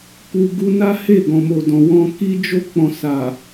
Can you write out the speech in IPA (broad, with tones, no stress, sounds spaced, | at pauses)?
k u˧ ɡ u˧ n a˦ h e˦˨ ɡ ɔ̃˨ m o˨ d ɔ̃˨ w ɔ̃˧ k i˦ d͡ʒ o˦˨ k͡p ɔ̃˨ s a˨